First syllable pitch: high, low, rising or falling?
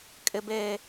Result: high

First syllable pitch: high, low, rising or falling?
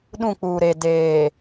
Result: falling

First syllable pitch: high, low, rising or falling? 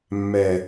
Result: low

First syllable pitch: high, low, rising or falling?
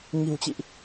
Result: low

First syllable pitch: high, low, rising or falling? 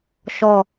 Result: falling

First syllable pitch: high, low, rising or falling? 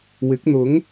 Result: rising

